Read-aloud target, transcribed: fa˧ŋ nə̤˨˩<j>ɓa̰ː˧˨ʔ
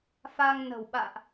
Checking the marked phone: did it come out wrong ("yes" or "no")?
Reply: yes